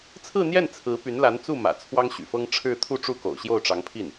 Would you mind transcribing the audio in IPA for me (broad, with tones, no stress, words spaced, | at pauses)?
t͡sʰɹ̩˥˧n̪jɛ˥˩n t͡sʰɹ̩˧˥ py˧˥nla˧˥nt͡su˥˩mä̰˨˩ t͡sʰwɑ˥ŋɕy̰˨˩fɤ˥ŋ ʈ͡ʂʰɻ̩˥˧ t̪ʰu˥˧ʈ͡ʂu˥˩ko̰˨˩ʊ̯ ɕjo˥˩ʊ̯ʈ͡ʂɑ˧˥ŋpʰi˥˩n